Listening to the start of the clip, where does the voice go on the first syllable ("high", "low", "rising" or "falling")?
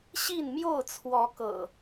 falling